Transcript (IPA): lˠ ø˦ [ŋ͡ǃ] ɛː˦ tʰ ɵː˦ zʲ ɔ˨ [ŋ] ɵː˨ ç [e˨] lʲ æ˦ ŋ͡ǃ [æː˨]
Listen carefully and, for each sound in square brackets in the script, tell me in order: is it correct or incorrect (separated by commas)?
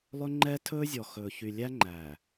correct, incorrect, incorrect, correct